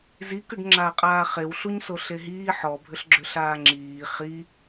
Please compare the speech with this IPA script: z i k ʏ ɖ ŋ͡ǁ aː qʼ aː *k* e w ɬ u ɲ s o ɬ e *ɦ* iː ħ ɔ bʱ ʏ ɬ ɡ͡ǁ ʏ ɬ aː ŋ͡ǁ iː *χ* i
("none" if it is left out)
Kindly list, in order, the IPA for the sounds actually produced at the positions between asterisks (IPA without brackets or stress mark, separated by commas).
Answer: χ, ɦ, χ